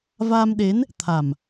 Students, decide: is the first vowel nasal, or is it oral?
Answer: oral